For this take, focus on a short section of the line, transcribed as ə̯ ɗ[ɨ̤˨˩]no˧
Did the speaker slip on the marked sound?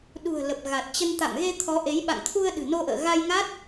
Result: no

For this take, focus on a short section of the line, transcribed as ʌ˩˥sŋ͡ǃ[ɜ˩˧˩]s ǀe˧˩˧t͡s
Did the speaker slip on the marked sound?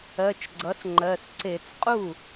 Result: no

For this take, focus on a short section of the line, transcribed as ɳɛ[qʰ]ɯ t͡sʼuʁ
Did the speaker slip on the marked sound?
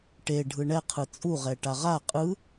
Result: no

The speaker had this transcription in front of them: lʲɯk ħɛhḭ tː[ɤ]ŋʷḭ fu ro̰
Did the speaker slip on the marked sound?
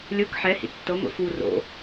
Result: no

